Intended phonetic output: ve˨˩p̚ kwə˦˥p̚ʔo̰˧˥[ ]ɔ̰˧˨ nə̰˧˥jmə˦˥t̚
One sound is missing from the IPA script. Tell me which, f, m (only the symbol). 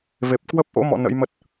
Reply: m